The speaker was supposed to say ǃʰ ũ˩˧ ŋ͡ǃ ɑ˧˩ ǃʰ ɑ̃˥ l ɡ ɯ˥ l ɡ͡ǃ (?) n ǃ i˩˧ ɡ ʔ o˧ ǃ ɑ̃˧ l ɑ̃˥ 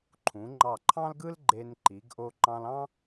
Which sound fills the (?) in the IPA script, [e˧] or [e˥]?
e˧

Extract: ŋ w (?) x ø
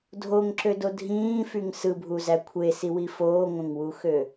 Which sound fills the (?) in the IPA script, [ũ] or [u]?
u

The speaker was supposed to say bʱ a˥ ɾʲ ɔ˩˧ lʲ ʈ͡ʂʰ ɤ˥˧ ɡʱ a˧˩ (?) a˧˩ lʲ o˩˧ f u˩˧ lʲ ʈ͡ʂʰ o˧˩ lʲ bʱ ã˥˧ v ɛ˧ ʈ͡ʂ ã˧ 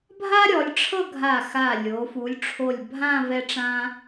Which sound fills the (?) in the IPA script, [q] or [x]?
x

